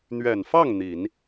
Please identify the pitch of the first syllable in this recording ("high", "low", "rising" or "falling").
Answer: low